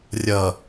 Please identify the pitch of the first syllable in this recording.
low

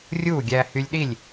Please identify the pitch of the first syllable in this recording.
falling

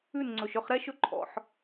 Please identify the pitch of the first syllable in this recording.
falling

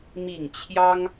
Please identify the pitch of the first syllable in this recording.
falling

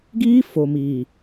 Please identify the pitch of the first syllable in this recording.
high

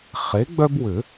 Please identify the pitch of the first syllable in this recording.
rising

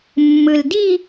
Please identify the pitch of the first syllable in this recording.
low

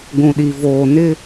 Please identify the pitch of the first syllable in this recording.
low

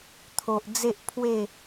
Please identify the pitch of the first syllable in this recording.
low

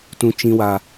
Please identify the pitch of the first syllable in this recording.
high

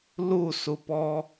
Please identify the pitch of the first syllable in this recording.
falling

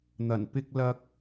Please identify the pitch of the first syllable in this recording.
low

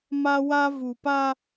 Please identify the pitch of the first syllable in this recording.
high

